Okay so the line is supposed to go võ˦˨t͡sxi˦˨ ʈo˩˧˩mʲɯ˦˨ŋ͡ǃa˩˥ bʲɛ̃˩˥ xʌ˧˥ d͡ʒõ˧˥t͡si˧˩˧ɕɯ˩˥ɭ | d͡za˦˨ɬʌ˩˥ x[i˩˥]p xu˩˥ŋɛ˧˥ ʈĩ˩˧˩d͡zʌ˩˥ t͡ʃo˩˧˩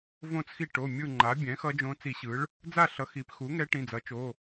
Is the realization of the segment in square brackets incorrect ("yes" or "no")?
no